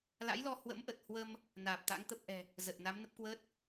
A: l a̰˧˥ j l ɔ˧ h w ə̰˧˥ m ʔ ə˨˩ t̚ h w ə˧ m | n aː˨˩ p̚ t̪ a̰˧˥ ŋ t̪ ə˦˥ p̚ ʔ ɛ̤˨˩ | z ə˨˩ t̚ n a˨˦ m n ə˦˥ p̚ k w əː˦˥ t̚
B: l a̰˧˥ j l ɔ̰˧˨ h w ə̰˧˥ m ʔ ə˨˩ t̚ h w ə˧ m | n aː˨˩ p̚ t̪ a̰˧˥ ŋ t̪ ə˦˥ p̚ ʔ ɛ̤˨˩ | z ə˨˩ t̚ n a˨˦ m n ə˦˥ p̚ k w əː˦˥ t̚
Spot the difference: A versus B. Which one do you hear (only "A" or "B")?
A